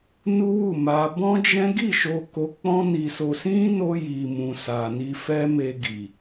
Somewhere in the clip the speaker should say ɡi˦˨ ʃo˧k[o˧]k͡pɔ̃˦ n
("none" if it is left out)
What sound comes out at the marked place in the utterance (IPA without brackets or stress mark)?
o˧